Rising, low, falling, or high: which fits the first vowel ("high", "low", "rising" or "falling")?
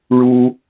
high